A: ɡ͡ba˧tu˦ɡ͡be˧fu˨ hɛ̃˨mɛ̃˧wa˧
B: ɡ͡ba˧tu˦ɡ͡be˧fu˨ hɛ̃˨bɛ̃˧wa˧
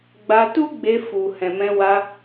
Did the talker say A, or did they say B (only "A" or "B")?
A